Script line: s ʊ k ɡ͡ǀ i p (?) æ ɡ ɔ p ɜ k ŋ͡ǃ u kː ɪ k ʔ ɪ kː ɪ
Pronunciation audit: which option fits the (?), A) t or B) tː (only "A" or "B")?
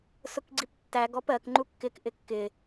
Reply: B